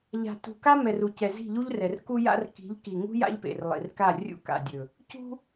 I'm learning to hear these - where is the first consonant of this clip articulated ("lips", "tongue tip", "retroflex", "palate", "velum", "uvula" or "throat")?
palate